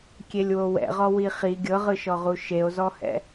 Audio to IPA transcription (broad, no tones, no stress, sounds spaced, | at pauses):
kʲ e lʲ w o w ɛ̰ ʁ ɔ w i χ i ɡʲ ɤ ʁ ɯ ʃ ɔ ʁ u ʃ e o̯ z ɔ h ɛ̰